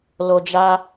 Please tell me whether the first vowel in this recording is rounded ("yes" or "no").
yes